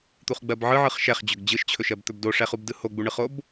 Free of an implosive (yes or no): yes